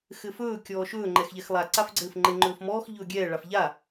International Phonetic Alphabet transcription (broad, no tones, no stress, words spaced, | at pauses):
xɘfɵː kʲɔːʃɵː ŋ͡ǃɛxʎɛxlˠa ǀafɡ͡ǀɘːfŋ͡ǃɘ ŋ͡ǃɵːfmɔːx ʎɵːɡʲɛː ɭafʎa